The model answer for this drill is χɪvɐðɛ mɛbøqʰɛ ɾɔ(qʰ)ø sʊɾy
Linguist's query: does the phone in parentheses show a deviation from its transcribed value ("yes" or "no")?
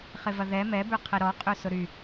yes